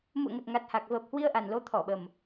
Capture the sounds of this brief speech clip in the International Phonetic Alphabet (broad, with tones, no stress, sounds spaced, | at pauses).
m ṵ˧˨ ə̯ ŋ ə˨˩ t̚ ŋ a˨˩ t̚ h a˨˩ k̚ v əː˨˩ p̚ h w i˧ ə̯ ʔ a˨˩ n l o˨˦ t̪ʰ ɔ˧˩ ɓ ə˨˩ m